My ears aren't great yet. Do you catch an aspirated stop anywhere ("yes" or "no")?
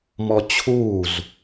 yes